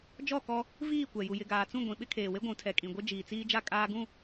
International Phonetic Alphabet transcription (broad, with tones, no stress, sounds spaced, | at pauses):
d͡ʒ ɔ˦˨ k ɔ˦ | v iː˦˨ kʷ ɛ˨ j u˨ j ɪ˨ ɡ aː˨ t͡s ũ˦˨ ɡʷ ĩ˨ ɓ ɪ˦ kʰ eː˨ w e˦ ɡʷ ũ˨˦ tʰ ɛ˨ kʼ ĩ˨ ɡʷ ɪ˦ d͡ʒ iː˨ t͡s iː˦ d͡ʒ a˦ kʼ aː˦ ɡ ũ˦˨